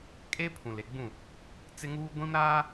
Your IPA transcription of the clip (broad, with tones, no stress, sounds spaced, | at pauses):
kʼ e˦ pʰ ũ˨ l e˨ ɡ͡b ũ˦˨ | t͡s ɪ˦ ŋ uː˦ ɡʷ ĩ˦ m ɾ aː˦